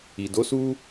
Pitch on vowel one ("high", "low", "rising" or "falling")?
low